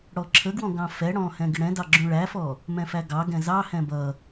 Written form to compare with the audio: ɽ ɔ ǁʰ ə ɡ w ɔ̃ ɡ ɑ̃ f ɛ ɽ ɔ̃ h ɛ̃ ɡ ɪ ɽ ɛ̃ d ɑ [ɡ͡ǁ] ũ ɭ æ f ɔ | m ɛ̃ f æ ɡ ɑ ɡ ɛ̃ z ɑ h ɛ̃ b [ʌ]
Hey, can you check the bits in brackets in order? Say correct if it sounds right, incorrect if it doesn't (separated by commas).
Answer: correct, correct